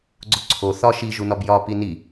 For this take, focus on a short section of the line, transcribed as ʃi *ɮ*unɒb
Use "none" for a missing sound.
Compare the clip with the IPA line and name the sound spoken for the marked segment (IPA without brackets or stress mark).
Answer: ʒ